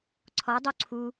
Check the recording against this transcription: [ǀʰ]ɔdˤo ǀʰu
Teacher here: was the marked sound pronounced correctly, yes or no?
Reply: yes